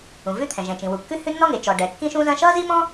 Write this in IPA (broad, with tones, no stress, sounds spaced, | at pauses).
ũ˩ v ʉ˥ t̪ʰ ɛ̃˩ ʒ ɛ̃˩ t͡ʃ ĩ˩ w u˩ kː ʉ˥ h ʉ˥ nː ɔ˥ ŋ e˩ t͡ʃ ɔ˩ ɖ ɛ˩ kː ĩ˥ ʃ ũ˥ z ɐ̃˥ ʃ ʌ˥ z i˥ m ɔ̃˥